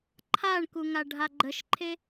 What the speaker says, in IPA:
ǃʰaɳkuŋa ɖʱaɡ͡ǃəʃǃʰe

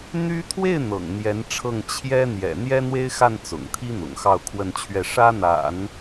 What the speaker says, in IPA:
n̪y˥ t̪ʰwe˥˩ɪ̯ n̪ɤ̰˨˩ŋn̪jɛ˧˥nʈ͡ʂʰɤ˥˩ŋ t͡ɕʰjɛ˥ n̪jɛ̰˨˩n̪jɛ˥ n̪we˥ɪ̯xa˥˩n t͡sʊ̰˨˩ŋt̪ʰi˥ n̪ʊ̰˨˩ŋxɑ˥˧ʊ̯kʰwə˥˧nt͡ɕʰɥɛ˥˩ ʂä˥n̪a̰˨˩˦n

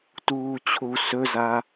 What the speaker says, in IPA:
tuːt͡ɕʰu sɵza

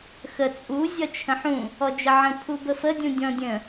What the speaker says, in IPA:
xə t͡sʼu zʲɒt͡ʃʰə̃ħũ | ɔd͡ʒəʕə̃ pʰubəfə dʲũdʲɔ̃dʲə̃

